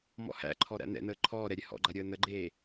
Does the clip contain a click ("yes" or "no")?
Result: yes